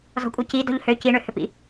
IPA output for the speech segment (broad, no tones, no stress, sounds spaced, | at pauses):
z ɔ̤ kʷʼ ɐ c i d ɔ̤ ʎ h ø c i ɳ ø h ʏ p ḭ